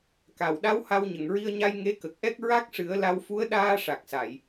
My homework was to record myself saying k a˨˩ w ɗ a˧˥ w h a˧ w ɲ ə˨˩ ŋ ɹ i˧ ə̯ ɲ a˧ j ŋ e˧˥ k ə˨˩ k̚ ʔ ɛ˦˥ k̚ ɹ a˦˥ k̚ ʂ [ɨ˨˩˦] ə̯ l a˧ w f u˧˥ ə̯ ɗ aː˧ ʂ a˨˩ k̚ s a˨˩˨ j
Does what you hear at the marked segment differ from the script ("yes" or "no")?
no